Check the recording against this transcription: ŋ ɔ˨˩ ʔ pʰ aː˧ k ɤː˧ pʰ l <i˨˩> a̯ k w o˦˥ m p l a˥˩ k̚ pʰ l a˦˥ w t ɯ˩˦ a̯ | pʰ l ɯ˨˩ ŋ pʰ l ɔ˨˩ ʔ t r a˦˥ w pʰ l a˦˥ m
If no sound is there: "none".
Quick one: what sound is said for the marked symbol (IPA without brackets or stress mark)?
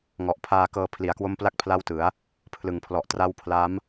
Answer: i˨˩